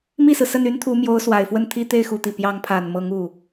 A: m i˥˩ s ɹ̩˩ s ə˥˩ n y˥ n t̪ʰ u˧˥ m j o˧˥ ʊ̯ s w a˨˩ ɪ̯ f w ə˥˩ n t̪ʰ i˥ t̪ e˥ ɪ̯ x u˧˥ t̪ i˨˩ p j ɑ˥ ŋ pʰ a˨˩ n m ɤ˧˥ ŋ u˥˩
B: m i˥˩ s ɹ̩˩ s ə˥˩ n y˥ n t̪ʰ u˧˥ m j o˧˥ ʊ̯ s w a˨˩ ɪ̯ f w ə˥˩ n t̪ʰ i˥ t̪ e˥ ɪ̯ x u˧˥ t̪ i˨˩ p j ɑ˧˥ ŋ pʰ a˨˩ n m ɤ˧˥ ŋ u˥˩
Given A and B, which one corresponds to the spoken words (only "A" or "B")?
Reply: B